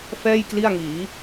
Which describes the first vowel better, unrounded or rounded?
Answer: unrounded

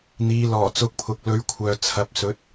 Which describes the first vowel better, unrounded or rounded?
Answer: unrounded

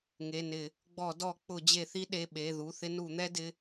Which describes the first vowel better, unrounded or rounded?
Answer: unrounded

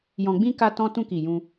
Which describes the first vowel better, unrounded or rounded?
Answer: rounded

